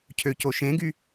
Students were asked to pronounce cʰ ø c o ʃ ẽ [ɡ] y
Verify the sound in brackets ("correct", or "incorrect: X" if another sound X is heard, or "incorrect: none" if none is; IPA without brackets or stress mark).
correct